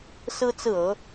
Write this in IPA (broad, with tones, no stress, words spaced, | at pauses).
sɹ̩˥ t͡sɹ̩˥˩ɤ˧˥